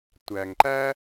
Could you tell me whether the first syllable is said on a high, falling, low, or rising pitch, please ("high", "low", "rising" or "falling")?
low